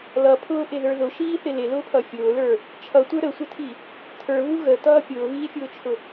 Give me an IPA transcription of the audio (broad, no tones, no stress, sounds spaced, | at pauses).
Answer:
l ʌ pʰ ʊː ʔ ɪ ð ə˞ ð ʊ ʃ iː θ ɪ l ɪ l ʊː pʰ ʌ fʲ ʊː l ə˞ | t͡ʃʰ ʌ tʷ ə˞ ɾ ə sʷ ɪ tʰ i | tʰ ə˞ β u ɣ ə t ʌː pʲ ʊː β iː fʲ ʊː t͡ʃʰ ʊ